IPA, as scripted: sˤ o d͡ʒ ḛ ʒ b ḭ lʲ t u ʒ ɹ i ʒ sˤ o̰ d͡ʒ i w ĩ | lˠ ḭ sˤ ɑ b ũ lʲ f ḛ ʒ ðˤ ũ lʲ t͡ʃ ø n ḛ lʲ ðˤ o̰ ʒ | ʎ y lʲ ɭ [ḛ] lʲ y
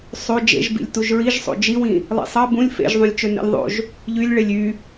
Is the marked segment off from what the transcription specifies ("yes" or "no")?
yes